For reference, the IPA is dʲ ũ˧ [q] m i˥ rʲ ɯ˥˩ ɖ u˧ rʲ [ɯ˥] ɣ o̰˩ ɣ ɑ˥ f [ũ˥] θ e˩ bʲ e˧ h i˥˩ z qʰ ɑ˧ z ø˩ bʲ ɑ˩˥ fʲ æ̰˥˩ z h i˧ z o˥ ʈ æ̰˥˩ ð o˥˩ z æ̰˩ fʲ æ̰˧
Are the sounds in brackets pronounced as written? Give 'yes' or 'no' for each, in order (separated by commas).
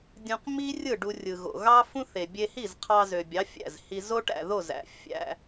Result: yes, no, yes